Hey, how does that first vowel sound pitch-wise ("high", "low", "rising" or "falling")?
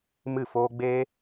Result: falling